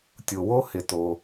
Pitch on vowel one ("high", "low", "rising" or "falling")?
low